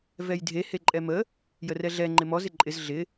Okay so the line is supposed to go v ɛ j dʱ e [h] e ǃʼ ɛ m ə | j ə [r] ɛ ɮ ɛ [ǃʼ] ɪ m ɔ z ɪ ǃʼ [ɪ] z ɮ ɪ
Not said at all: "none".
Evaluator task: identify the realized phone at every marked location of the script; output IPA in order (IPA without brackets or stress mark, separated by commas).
h, r, ŋ͡ǃ, ɪ